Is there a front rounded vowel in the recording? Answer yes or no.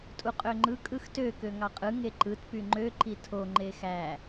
yes